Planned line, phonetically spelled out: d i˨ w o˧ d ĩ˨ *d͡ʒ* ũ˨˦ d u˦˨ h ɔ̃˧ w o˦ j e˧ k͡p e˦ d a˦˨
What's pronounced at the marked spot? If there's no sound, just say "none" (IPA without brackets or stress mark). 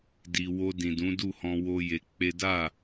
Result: d